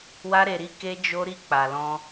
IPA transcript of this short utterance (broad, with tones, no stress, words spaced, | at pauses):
wa˦ɾe˧ɾi˦ ke˦d͡ʒo˦ɾi˦ k͡pa˧lɔ̃˦